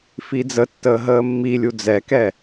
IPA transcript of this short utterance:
f i d͡z ə tː əː ɦ əː mː i lʲ u d͡z ɛ k ɛ

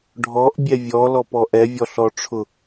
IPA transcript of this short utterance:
ɖʱ ɔ ʔ bʲ ɛ vʲ ɔ l ɔ p ɔ ʔ ɛ vʲ ɔ ɬ ɔ ʈ͡ʂʰ ʊ

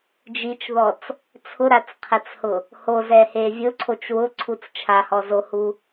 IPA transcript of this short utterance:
d͡ʒ i t͡ʃ ð ɔ t͡s | t͡sʰ ʊ ɾ a t͡s qʰ ɛ t͡s h ʊ | h o z ɛ h e vʲ ʊ ǀʰ o t͡ʃ w ʊ ǀʰ u t͡s t͡ʃʰ a h ɔ z o h u

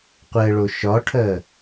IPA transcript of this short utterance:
qʷ ɛ ɭ o ʃ ɒ ʈʰ ɜ

